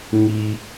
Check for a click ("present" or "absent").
absent